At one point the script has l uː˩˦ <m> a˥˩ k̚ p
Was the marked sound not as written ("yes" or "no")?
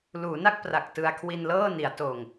yes